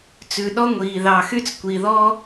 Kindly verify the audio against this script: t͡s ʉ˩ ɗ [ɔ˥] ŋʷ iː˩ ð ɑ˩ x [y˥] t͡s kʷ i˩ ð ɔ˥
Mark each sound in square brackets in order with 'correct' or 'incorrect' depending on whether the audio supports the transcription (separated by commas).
correct, correct